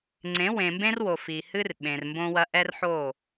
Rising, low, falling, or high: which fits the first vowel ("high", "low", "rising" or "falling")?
rising